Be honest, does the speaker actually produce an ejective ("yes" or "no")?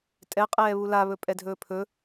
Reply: yes